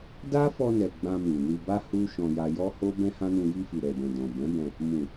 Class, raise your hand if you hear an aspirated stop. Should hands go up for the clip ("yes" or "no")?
no